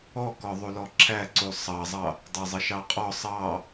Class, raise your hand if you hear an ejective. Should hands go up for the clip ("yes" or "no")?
yes